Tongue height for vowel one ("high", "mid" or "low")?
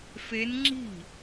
mid